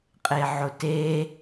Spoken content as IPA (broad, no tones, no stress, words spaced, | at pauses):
qʼeʕʊte